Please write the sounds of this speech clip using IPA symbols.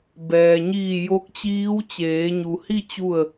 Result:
b ɛː˩ ɲ iː˧˩ j o˧˥ k̚ t͡ɕ iː˧˥ w t͡ɕ eː˩˧ ɲ u˩ h i˥˨ t͡ɕ u˥˨ ə̯

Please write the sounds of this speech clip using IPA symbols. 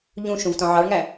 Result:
ʎ ũ ʃ ũ v t ɔ̃ ʕ ɑ ɭ ŋ æ

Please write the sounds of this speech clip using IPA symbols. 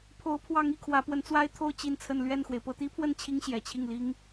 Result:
pʰ o˧˥ ʊ̯ pʰ w ɑ˧˥ ŋ i˥˩ kʰ w ä˧˥ p w ə˧˥ n t͡s w a˥ ɪ̯ t̪ʰ o˥˧ ʊ̯ t͡ɕ i˥˧ n t͡sʰ ə˥˧ n l ɥ ɛ˥˩ n x w e˩ ɪ̯ p ɤ˥˩ t̪ i˥ pʰ w ə˥˩ n t͡ɕʰ i˥ ŋ ɕ j ɛ˨˩ t͡ɕʰ i˥˩ ŋ l i˥ ŋ

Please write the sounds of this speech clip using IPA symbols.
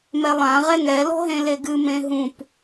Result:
m ɛ lˠ ã ʁ ɛ ŋ ɛ l ɔ̤ ɦ ẽ l e ɡ ɨ m ẽ ɦ ũ p

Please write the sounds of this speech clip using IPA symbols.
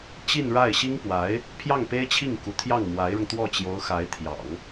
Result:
t͡ɕ i˥˧ n ɻ a˥˩ ɪ̯ ɕ i˥ ŋ p w a˧˥ ɪ̯ | pʰ j ɑ˥˩ ŋ p e˥ ɪ̯ t͡ɕʰ i˥˩ ŋ k u˧˥ t̪ʰ j ɑ˥˩ ŋ m w a˧˥ ɪ̯ ɻ ʊ˧ ŋ t̪ w ɔ˥˩ t͡ɕ j o˧˥ ʊ̯ x a˧˥ ɪ̯ t̪ʰ j ɑ̰˨˩˦ ŋ

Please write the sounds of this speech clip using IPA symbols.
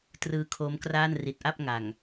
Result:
t r ɯː˧ kʰ oː˦˥ m k r aː˥˩ n r i˨˩ t̚ ʔ a˥˩ p̚ ŋ a˨˩ ŋ

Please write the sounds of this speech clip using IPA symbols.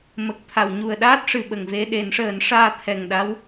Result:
m ə˨˩ k̚ t̪ʰ a˨˩˨ w ɲ u˨˩ ə̯ ɗ aː˦˥ t̚ ʂ ɨ˨˩ ɓ ə˨˩ ŋ v e˧ ɗ e˨˩˦ n ʂ əː˨˩˦ n ʂ aː˧ t̪ʰ ɛ˨˩ ŋ ɗ a˧˥ w

